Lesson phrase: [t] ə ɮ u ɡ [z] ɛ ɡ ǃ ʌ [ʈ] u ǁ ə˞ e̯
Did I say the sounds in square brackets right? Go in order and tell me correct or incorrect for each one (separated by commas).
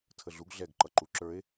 incorrect, incorrect, incorrect